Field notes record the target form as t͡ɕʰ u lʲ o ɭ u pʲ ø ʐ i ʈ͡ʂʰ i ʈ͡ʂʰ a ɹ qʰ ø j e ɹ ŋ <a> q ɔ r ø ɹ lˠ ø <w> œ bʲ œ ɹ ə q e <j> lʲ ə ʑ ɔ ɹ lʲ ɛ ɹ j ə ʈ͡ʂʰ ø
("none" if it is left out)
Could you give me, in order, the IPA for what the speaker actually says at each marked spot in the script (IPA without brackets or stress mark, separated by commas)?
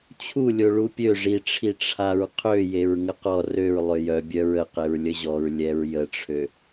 ə, j, ɹ